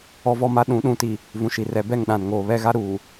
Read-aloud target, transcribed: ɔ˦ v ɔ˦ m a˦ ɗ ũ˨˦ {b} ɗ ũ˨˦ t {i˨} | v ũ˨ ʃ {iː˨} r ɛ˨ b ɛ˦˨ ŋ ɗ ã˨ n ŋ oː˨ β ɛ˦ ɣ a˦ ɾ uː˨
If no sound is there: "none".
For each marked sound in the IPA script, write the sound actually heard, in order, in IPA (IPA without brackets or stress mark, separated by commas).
none, i˨, i˨